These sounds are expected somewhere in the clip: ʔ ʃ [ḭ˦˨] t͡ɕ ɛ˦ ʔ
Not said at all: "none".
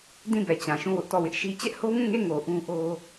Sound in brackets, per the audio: i˦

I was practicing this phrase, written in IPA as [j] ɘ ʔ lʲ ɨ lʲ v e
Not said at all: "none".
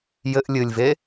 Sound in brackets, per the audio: j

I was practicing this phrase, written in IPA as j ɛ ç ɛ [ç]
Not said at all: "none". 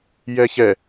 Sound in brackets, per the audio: none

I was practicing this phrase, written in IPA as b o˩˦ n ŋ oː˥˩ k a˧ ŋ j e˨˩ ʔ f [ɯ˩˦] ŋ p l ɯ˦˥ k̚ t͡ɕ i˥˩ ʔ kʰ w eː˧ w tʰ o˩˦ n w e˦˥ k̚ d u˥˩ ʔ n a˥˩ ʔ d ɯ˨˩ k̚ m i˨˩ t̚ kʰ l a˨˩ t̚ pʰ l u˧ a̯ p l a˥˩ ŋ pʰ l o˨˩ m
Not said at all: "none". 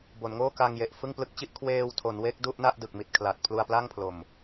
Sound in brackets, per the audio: ɯ˥˩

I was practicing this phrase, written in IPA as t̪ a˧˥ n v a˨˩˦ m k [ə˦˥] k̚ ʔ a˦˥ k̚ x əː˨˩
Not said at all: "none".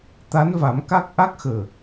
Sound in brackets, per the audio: a˦˥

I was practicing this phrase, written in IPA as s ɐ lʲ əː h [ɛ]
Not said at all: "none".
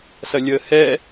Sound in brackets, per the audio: ɛ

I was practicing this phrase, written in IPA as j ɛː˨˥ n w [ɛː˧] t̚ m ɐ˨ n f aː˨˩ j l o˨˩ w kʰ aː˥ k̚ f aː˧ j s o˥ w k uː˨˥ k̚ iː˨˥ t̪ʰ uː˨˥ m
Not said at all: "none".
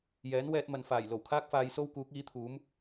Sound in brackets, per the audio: ɛː˧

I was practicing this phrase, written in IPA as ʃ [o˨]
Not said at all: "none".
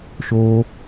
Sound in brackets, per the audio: o˦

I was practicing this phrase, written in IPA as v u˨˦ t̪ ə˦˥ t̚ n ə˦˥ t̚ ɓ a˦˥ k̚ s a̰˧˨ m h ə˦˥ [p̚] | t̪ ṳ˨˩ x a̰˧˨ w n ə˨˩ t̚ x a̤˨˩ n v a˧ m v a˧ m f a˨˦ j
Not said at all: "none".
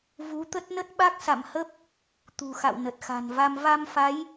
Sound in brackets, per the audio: p̚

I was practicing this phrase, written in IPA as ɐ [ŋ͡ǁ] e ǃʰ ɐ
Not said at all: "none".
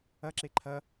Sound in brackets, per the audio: ǁ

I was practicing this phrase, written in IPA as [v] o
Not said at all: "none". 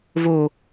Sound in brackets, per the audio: v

